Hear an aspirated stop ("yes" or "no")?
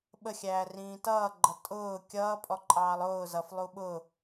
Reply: no